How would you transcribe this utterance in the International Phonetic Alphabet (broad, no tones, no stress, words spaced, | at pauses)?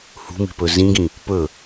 hṳmi̤pɵ zĩɡĩ | pɵ